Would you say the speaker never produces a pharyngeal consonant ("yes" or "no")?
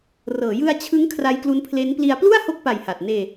yes